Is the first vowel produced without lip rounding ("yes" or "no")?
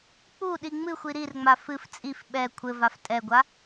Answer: no